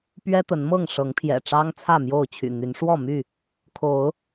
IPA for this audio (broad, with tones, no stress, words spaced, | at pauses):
pɥɛ˦t̪ə˨˦nmɤ˥˨ŋ ʂɤ˨˦ŋpʰjɛ̰˨˩ʈ͡ʂɑ˦ŋ t͡sʰä˥˨mjo˥˨ʊ̯t͡ɕʰy̰˨˩n̪y˨˦n ʂwɔ˥˨my˥˨ | kʰo˨˦ʊ̯